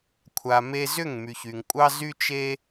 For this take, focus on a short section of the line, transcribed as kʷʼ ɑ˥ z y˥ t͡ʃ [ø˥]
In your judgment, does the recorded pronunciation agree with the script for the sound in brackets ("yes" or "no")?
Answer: no